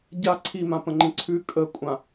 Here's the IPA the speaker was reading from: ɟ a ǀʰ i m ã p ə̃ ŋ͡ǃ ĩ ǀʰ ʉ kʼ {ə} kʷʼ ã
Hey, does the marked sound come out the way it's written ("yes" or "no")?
yes